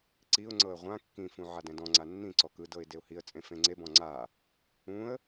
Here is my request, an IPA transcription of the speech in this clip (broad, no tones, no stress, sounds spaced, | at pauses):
ǀ i ʊ̯ ŋ͡ǀ ɤ ə̯ ʁʷ ã kː ĩ f ũ ʕ a d ɛ̃ d ɔ̃ ŋ͡ǀ a nː ĩ ǀ ɔ k ɯ d ɤ ɪ̯ d e ʊ̯ h i ə̯ t͡sʼ ẽ f ẽ ŋ͡ǀ e b ɔ̃ ŋ͡ǀ a | ũ ə̯